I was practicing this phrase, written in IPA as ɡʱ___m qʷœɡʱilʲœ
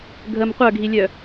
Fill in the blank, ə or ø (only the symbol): ə